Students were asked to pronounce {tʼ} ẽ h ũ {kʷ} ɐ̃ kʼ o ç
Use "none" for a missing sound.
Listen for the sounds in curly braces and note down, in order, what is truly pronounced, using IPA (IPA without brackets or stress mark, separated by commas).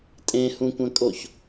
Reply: tʼ, kʷ